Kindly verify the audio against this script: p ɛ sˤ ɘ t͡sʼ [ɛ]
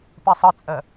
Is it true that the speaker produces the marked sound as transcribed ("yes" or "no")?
no